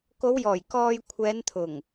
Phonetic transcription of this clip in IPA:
k o˨˧ w j ɔː˨˩ j k ɔː˧ j kʷʰ ɛː˨˧ n t̪ʰ ʊ˨˩ ŋ

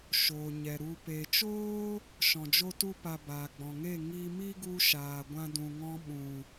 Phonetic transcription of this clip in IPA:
ʃ oː˨ ɲ ɛ˨ ɾ u˨ p e˨ t͡ʃ oː˦ | ʃ ɔ̃˨ d͡ʒ o˦ t u˦ p a˧ b aː˨ ɡ͡b ɔ̃˨ ŋ e˦˨ ŋ i˧ m i˦ ɡ u˧ ʃ aː˨ ɡʷ ã˧ d ũ˨ ŋ ɔ̃˧ ɓ ũ˨

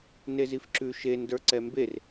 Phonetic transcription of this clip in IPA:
n e z i f ǁ ʉ ʃ e n d ə˞ ǀ ɛ m b e r

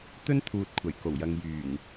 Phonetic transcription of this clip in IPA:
t̪ ɵ˥ n t̪ʰ uː˨ t̚ kʷʰ ɐ˨˩ j k o˨˩ w j ɐ˨ ŋ j yː˨˩ ŋ

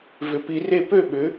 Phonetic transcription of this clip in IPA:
v ʏ˨˥ p i˨˥ r e˥˧ p ø˥˧ ɓ ʏ˨˥

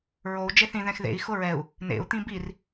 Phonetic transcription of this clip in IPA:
ɹ o u̯ d͡ʒ e θ ĩ ð ɛ̃ x ð ḛ i̯ x ʊ ɹ ɛ u̯ | n ḛ u̯ t̪ ĩ b i r

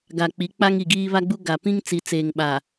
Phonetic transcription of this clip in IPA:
ɡ a˨ k͡p i˨˦ k͡p a˦ ŋ i˨ ɡ iː˦ β a˦ ɡ͡b u˦ ɡ a˨ p ĩ˦ ŋ t͡s i˨ t͡s eː˨ ŋ ɓ a˨

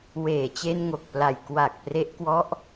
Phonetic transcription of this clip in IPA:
w eː˨˩ t͡ɕ e˧ n ŋ o˨˩ k̚ p l a˨˩ j k w a˨˩ k̚ p r e˦˥ ʔ k w ɔ˦˥ ʔ

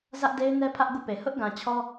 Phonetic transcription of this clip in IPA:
z ä˦ ʔ d e˦ ɪ̯ n ɛ˦ pʰ ä˦ ʔ ɡ ṵ˦˨ p e˨ h ʊ˦ ʔ ɡ ã˨ t͡ɕʰ ɔ˦

